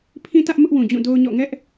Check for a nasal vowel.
present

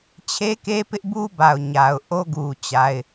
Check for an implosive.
absent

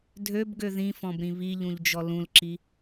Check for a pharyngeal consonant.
absent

